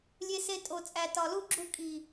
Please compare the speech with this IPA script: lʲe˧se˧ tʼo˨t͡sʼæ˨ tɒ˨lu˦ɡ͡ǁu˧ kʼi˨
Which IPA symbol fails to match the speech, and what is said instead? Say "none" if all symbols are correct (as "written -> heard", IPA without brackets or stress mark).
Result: none